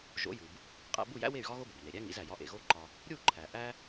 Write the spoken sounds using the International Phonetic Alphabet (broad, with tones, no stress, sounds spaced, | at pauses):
ʒ o̰˩˥ j u˩ b | qʼ æ̰˧ b u˥˩ j æ̰˥ w e˥˩ y̯ ɣ ɒ˥ ɣ o˥ b o̰˩ b n e˩ ɾʲ æ˥ ŋ ḭ˩˥ z æ˩ j ɒ˧ ʔ ḛ˩ ɣ o˥ ǃ ɒ˧ | ɾʲ u˥˩ ǃʰ æ˩ ʔ æ˥